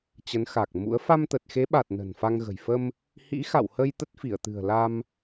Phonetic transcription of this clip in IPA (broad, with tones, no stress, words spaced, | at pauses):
t͡ɕə˨˦nxa˨˩k̚mṵ˧˥ə̯ fa˧mt̪ə˨˩t̚xe˨˦ɓa˨˩t̚ nə̤˨˩nfa˧ŋɣə̤˨˩j fə˧m | hḭ˧˥xa̰˧˨whə˧j t̪ə˦˥t̚fi˧˩ə̯t̪ɨ̤˨˩ə̯ la˧m